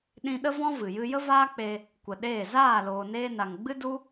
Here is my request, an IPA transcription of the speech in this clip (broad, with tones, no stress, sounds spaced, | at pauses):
ɗ ĩ˧ ɗ ə˦ v ɔ̃˦ v ɨ˨ j ɨ˦ j ə˦ v aː˦ k͡p e˧ | kʷ ə˨ ɗ eː˦˨ z aː˦˨ l oː˨ n eː˧ n a˨ ŋ ɡ͡b ɨ˦ d u˦